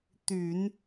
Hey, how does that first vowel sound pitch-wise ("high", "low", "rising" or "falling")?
low